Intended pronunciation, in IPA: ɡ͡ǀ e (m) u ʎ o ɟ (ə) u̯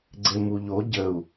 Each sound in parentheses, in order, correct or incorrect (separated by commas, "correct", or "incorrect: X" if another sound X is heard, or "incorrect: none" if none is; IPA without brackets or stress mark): correct, correct